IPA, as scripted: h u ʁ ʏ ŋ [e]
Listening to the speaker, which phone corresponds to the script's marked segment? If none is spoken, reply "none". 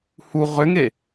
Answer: e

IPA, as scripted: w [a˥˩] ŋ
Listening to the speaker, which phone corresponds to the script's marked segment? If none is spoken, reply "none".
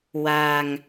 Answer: a˧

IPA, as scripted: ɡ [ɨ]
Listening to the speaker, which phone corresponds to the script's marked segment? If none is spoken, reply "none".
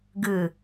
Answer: ɨ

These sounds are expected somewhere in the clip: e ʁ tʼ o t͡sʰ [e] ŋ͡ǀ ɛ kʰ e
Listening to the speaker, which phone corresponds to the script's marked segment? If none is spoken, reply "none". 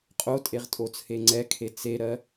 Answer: e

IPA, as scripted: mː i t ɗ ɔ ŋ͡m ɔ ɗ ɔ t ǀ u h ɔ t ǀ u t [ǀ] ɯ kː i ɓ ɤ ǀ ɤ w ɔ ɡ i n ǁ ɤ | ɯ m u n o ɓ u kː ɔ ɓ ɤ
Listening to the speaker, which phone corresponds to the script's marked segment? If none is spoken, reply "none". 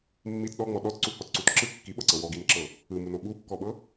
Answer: ǁ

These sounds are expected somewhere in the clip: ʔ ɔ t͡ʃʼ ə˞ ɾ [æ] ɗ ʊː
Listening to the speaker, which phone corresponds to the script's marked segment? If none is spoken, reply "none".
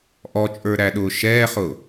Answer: æ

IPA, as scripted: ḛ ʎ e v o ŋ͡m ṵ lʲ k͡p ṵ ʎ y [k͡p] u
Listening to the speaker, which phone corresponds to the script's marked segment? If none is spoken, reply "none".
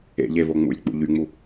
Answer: ŋ͡m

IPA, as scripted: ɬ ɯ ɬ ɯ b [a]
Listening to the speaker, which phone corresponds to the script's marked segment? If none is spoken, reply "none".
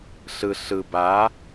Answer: a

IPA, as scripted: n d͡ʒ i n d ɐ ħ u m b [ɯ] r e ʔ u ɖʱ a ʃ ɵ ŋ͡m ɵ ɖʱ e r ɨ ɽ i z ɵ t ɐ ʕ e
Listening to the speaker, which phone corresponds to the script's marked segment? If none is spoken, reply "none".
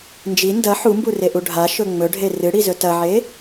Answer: u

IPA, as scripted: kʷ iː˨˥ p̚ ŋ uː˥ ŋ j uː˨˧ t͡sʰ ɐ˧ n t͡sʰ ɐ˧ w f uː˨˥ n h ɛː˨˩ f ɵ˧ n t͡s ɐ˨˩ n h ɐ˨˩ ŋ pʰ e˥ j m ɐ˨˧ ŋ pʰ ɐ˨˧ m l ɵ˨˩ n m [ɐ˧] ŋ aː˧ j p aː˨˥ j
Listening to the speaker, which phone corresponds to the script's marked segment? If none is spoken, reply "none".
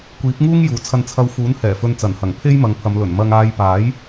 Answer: ɐ˧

